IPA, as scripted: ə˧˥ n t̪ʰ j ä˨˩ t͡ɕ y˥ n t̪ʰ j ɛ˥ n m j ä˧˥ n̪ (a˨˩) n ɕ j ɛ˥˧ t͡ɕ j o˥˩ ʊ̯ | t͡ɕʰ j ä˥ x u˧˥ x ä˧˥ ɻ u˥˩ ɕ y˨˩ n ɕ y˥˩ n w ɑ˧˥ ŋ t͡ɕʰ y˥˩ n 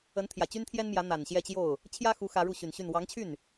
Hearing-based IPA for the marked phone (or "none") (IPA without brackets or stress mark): a˨˩